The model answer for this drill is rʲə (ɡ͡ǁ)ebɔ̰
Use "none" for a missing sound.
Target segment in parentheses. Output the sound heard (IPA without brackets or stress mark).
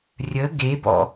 ɡ